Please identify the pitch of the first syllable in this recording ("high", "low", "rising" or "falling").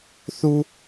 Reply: high